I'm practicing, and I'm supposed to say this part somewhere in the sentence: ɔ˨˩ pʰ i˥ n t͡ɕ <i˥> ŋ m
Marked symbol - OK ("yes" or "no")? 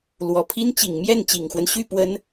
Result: no